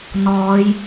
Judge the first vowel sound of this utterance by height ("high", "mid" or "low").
mid